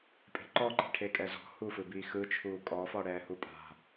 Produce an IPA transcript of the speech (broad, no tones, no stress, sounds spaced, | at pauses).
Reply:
pʼ e̤ ǃ ɔ ǃ i̤ ʈʰ e kʼ ɛ z ɔ̤ h u f ɯ b iː x ɯ t͡ʃʰ uː kʼ ɔ f ɔ ɽ ɛː h u pʼ a̤